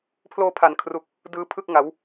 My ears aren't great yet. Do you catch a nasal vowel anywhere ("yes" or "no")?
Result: no